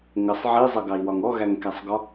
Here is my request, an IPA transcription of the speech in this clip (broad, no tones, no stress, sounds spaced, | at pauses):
ŋ ə sˤ ʕ i zˤ ʌ ɡ ɑ i̯ w ɒ ŋ ɔ ɣ æ ŋ k æ sˤ ɡ ɒ